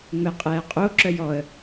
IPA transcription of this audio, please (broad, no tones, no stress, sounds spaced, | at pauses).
ŋ͡m ɛ qʼ ɛː qʼ o ǁ œ j ɔ ə̯